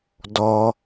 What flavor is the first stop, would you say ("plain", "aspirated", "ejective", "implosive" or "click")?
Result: plain